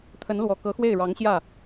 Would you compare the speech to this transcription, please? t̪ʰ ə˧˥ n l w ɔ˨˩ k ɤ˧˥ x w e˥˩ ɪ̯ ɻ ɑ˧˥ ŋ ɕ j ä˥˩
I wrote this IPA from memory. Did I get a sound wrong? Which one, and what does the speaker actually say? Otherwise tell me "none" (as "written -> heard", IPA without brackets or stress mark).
none